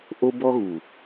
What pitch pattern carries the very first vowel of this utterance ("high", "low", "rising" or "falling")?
high